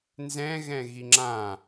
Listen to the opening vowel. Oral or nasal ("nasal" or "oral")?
nasal